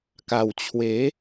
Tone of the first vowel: low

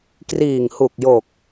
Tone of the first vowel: low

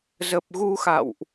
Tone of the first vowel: low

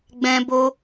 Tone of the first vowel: high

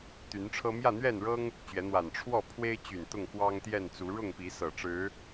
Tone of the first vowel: rising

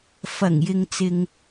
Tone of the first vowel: low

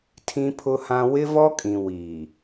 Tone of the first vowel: high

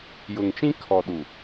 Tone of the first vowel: low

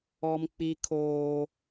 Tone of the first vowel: high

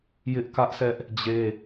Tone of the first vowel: high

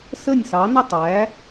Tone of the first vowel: falling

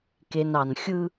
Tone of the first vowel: low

